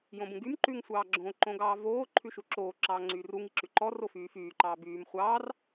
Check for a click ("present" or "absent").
present